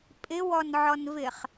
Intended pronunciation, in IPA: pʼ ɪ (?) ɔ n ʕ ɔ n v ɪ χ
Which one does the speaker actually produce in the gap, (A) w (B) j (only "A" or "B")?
A